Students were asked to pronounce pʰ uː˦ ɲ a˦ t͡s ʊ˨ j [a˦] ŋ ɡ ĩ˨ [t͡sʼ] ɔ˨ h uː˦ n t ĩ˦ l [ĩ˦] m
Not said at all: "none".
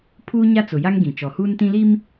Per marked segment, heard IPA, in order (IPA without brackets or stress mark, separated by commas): a˦, t͡ʃ, i˦